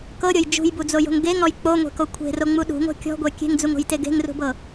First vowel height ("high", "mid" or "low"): mid